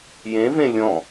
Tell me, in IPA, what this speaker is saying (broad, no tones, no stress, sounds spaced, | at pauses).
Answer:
j ẽ v ẽ lʲ ɔ̃